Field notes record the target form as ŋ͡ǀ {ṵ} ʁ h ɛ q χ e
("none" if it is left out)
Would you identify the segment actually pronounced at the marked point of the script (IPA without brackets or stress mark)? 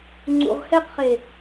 ṵ